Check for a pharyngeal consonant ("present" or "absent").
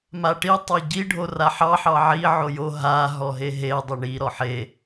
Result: present